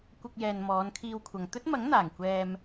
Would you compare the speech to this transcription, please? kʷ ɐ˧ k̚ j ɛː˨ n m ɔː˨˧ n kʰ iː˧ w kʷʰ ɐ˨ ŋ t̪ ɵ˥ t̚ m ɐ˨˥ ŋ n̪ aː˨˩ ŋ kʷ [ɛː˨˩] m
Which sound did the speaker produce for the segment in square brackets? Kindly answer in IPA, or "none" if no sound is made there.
ɛː˧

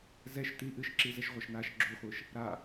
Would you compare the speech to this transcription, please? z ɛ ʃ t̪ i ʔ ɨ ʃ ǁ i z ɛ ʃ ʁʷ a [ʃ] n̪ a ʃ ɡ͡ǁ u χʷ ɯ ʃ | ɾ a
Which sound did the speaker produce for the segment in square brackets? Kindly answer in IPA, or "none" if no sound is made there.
ʃ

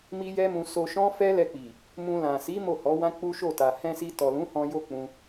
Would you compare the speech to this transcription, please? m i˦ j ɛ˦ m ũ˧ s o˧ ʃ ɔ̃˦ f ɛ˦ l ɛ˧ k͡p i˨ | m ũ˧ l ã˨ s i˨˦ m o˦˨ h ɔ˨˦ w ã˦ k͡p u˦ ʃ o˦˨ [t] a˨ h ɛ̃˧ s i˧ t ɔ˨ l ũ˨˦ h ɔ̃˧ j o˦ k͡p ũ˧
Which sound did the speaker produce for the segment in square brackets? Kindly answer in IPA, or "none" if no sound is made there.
t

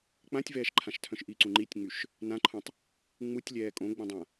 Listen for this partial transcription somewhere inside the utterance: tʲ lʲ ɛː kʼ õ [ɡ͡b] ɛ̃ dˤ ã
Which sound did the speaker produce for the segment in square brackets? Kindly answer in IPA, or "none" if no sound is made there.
ɡ͡b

